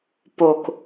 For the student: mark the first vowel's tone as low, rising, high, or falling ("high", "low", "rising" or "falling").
low